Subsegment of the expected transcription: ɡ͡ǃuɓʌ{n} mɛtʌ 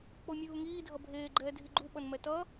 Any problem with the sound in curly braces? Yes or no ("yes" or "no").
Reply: no